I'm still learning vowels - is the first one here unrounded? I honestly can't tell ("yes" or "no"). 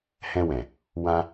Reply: yes